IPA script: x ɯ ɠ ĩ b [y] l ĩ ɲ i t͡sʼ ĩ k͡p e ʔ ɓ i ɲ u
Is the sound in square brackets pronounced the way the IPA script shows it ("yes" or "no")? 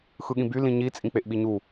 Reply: yes